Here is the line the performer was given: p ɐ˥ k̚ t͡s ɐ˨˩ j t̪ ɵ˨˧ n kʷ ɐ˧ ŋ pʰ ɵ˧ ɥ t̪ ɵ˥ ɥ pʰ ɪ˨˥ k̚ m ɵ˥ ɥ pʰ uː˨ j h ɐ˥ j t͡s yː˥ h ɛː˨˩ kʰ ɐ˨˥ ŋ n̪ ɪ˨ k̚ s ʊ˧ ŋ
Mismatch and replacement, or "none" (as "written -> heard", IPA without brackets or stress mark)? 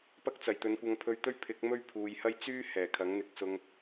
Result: none